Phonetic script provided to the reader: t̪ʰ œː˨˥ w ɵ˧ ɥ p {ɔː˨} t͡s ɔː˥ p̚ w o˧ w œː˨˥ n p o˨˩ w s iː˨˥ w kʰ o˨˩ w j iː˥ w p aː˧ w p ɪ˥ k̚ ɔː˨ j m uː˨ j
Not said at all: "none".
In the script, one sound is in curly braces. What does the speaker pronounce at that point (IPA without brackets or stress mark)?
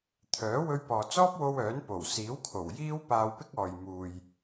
ɔː˨